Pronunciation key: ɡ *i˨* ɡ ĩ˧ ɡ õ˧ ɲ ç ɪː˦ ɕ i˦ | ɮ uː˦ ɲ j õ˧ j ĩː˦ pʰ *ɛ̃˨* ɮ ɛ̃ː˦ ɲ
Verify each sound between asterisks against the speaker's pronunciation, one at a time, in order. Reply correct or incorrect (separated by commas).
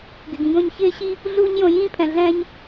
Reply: incorrect, correct